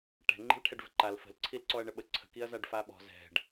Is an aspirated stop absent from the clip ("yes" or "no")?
no